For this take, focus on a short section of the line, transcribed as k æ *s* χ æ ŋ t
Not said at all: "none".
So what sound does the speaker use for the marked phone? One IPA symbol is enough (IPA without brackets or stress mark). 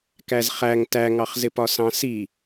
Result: z